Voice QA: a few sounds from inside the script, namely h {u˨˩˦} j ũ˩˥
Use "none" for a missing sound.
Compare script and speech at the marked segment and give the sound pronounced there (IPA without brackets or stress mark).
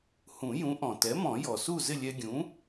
ũ˨˩˦